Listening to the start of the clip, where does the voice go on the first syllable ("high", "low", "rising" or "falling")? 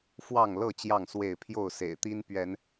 falling